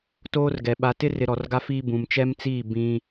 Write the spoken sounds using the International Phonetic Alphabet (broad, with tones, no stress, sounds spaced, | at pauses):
t oː˦ r ɡ ɛ˨ ɓ a˨ t ɪ˦ r ɪ˨ ɾ ɔ˨ r ɡ a˦ f iː˦ b ũ˨ m t͡ʃ ɛ˦ m t͡s iː˦˨ b ĩ˦